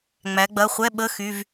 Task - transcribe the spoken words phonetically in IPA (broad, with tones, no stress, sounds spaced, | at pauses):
ŋ͡m æ˩˧ ɡ͡b ɐ˩˧˩ χʷ ɛ˧˥˧ ɓ ə˧˥˧ x y˩˧˩ v